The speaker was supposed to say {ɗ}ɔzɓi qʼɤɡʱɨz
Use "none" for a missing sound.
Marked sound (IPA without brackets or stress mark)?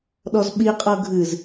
ɗ